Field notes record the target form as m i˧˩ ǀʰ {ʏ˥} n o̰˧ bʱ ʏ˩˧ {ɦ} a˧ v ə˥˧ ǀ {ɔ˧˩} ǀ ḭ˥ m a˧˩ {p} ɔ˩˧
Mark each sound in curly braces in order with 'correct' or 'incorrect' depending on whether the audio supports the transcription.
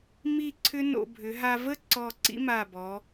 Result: correct, correct, correct, incorrect

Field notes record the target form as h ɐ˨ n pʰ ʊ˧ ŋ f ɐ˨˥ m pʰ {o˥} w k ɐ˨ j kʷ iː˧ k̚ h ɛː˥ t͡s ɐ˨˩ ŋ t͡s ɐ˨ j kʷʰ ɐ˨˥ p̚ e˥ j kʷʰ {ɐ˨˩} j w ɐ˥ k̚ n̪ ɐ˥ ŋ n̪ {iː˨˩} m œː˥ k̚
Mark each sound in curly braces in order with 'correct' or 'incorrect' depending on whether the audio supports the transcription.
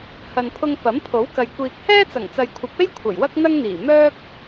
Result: incorrect, correct, correct

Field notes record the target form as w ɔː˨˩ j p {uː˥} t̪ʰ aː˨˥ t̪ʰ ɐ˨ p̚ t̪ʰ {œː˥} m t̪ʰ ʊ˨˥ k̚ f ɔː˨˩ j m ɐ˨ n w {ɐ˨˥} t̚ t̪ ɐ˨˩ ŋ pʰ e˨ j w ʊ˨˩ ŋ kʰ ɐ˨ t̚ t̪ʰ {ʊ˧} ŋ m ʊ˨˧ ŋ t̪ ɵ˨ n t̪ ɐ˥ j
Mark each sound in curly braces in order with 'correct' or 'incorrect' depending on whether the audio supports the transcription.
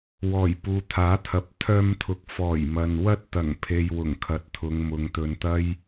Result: incorrect, incorrect, incorrect, incorrect

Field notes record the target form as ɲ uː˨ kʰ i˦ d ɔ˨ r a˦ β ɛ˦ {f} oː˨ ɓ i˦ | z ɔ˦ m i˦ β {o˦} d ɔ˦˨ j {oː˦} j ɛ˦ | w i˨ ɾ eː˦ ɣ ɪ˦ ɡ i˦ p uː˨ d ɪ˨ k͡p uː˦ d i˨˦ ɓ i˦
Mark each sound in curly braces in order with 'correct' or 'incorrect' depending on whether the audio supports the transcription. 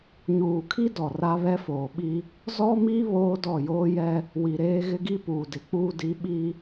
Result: correct, incorrect, correct

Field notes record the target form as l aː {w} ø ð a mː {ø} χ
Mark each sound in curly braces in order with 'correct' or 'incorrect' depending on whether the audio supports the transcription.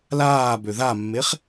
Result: incorrect, incorrect

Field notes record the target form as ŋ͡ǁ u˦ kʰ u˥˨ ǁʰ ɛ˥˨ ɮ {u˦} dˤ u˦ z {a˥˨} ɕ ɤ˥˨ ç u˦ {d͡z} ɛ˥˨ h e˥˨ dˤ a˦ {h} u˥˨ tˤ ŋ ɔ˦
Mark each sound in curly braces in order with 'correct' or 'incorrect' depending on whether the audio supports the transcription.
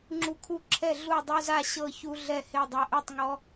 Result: incorrect, correct, incorrect, incorrect

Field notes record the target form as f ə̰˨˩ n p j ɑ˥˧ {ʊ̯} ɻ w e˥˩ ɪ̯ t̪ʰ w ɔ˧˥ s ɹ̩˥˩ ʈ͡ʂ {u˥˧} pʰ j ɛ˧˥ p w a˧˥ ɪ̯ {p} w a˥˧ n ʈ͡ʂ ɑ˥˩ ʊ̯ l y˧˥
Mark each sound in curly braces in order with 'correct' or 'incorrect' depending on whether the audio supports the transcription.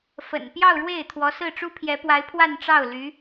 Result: correct, incorrect, incorrect

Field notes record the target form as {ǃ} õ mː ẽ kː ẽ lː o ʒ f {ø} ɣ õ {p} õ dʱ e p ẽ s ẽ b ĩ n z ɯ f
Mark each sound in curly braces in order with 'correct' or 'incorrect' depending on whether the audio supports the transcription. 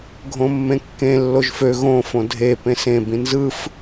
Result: incorrect, correct, incorrect

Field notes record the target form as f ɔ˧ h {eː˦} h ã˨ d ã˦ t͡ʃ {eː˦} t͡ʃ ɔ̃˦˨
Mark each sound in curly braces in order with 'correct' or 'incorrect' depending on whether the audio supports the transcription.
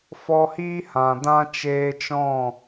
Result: incorrect, incorrect

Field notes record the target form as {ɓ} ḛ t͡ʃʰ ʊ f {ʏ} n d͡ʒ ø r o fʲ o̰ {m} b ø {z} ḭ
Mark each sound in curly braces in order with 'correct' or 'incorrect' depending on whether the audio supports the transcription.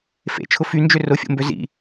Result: incorrect, incorrect, correct, correct

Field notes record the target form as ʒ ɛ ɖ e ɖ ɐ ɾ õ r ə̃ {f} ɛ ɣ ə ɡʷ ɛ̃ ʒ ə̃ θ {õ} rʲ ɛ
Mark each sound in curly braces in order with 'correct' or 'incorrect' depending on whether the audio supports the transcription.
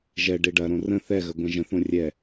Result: incorrect, correct

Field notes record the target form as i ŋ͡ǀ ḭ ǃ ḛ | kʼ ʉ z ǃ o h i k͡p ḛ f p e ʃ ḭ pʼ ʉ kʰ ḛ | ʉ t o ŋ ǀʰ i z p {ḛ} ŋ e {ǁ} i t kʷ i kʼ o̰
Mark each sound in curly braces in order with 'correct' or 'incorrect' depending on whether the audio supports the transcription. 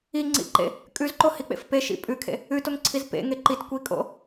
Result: correct, incorrect

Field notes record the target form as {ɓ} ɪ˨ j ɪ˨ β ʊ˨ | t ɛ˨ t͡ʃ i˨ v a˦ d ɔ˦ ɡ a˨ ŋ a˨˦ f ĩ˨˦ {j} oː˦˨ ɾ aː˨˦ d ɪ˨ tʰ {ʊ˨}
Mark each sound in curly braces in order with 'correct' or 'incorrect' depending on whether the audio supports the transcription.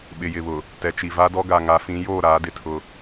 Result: correct, correct, incorrect

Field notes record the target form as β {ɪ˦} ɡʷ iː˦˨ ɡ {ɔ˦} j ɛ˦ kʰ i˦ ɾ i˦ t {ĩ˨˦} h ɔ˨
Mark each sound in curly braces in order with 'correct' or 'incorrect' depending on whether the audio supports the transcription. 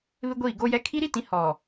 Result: correct, incorrect, correct

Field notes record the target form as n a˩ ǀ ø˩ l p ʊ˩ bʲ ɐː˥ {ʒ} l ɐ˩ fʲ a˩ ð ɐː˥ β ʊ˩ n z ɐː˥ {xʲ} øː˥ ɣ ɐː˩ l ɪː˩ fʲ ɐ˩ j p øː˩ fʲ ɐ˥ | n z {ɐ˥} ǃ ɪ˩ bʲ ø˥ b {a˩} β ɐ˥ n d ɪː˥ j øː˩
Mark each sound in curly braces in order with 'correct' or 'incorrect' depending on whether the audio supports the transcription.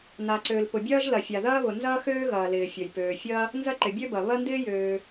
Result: correct, incorrect, correct, incorrect

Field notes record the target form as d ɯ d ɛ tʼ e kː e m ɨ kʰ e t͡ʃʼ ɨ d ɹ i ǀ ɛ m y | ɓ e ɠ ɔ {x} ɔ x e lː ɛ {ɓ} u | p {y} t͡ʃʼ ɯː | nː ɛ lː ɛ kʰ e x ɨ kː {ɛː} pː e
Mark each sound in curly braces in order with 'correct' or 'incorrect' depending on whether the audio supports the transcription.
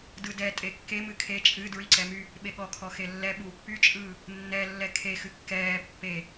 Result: incorrect, correct, correct, correct

